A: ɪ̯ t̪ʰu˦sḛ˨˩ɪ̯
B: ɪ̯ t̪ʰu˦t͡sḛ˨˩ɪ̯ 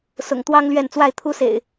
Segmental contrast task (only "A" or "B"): A